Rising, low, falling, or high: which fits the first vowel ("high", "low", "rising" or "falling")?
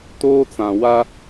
high